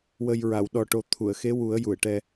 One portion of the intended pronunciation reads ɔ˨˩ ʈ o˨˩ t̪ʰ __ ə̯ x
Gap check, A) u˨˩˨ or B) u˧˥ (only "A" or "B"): A